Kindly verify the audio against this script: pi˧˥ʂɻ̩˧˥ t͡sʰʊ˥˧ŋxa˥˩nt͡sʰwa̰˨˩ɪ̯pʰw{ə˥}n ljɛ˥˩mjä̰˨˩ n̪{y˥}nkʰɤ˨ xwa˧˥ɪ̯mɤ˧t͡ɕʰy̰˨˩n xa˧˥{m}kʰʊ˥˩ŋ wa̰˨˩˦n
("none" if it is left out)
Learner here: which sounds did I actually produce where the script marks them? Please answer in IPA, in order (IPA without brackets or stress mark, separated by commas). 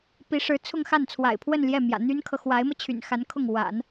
ə˥˧, y˥, n